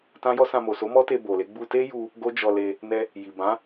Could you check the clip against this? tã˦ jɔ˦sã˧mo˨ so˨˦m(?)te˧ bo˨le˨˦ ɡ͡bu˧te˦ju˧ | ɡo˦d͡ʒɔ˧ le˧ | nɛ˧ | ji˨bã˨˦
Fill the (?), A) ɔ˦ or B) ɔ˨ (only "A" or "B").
A